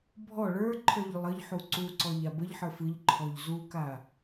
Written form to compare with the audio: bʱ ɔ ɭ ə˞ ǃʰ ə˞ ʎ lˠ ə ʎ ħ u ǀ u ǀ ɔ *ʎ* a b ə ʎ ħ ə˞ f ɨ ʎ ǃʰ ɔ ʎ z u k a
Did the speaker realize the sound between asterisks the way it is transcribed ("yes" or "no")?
yes